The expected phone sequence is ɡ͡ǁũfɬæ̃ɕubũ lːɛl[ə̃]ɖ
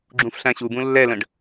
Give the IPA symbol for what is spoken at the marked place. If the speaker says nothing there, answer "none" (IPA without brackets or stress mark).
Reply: ə̃